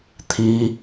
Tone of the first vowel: high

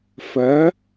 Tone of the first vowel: rising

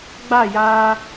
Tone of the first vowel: falling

